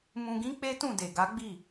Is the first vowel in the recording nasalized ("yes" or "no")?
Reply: yes